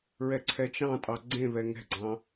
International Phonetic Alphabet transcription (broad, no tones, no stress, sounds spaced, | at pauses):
ɹ ɛ ǀʰ ɛ t͡ʃ ɑ̃ tʼ ɑ ɡ͡ǀ ẽ β ɛ ŋ ɛ̤ ɡ͡ǀ ɑ̃